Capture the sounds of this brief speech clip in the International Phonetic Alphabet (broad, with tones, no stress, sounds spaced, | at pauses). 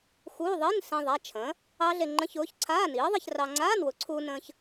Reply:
x uː˧˥˧ ðˤ iː˧˥˧ n s ẽ˧ ðˤ a˩˧˩ t͡ʃʰ ə̃ː˩˥ | ɑ˦˥ ɮ e˧ ŋ͡ǃ ə̃˧˥˧ ç ʊː˩˥ ç ǀʰ aː˧˥˧ n iː˩˥ ðˤ i˧ ç r ɑ˧ ŋ͡ǀ aː˧˥˧ n w ʊ˩˥ ǀʰ uː˧ n ə̃ː˧ ç